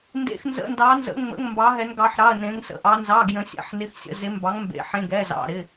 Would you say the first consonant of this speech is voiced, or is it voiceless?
voiced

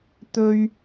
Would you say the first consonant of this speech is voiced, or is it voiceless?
voiceless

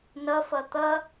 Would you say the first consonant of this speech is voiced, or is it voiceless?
voiced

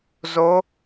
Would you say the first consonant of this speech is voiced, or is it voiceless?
voiced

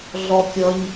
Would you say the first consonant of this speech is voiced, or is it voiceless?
voiced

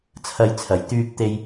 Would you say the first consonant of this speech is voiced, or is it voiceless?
voiceless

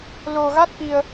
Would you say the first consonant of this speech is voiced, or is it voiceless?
voiced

